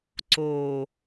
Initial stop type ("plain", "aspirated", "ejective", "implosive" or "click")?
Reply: click